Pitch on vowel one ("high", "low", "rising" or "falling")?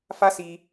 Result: high